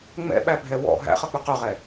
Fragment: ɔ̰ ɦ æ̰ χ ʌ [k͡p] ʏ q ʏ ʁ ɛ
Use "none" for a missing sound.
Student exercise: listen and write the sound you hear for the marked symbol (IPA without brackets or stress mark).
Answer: k͡p